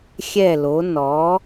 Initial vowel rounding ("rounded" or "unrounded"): unrounded